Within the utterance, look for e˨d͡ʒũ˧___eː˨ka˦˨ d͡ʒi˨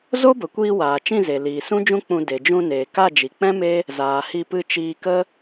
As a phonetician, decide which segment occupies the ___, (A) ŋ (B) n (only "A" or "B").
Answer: B